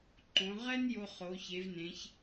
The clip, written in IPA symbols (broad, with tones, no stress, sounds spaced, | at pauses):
ǃ õ˩˧ ʁ ɛ˥ n j o˧ χ o˩˧ ç e˩˧ v n ẽ˩˧ ç